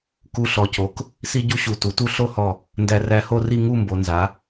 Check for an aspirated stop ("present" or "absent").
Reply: absent